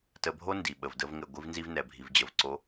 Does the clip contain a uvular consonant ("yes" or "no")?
no